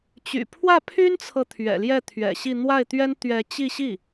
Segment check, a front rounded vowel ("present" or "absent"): present